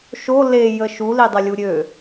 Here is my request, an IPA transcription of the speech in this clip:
ʃ o l e j ə ʃ u l i dˤ ə lʲ u ɾʲ ø

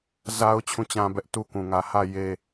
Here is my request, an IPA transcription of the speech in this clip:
z a˦ ʊ̯ t͡ɕʰ ũ˦˨ t͡ɕ ã˦ b ɛ˦ ʔ t u˦ k ũ˨ ŋ ä˨ h ä˦˨ j e˦

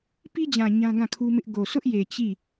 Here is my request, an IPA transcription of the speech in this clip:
p i˦ d͡ʑ ã˨ ɲ ã˦ ɡ ã˦˨ kʰ u˦ m ɪ˦ ʔ ɡ o˨ s ʊ˦ ʔ j e˨ t͡ɕ i˦˨

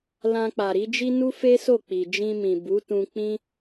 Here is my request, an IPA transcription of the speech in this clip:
l ã˧ k͡p a˨ ɾ i˨˦ d͡ʒ i˦ n u˦ f e˦ s o˦˨ k͡p i˨ d͡ʒ ĩ˧ m ĩ˨ b u˨˦ t ũ˧ k͡p ĩ˦

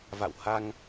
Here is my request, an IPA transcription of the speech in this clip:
v a̰˧˨ w h a˧ ŋ

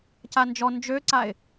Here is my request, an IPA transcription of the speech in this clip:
c a n d͡ʒ ɔ n d͡ʒ ø ǀ a ɪ̯

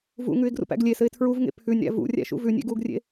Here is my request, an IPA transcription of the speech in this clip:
v ṵ ŋ ʉ ɪ̯ ɡ r ṵ p æ̰ ɡ lʲ e s ɘ ɪ̯ tʰ ɹ u v ŋ ḛ pʰ ʉ nʲ ɾ æ̰ v ṵ rʲ æ̰ ʃ ṵ v ʉ nʲ ḛ ɡ u ɡ rʲ ḛ

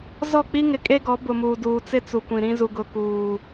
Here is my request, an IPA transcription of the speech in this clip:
z ɔ˦˨ k͡p i˦ ŋ ɪ˨ kʼ e˦ ɡ ɔ˨˦ b ʊ˨ m uː˨ d uː˨ t͡s ɪ˦ t͡s u˨ kʷ ĩ˨ ɾ ĩ˦ z u˨ ɡ ʊ˦ k uː˦

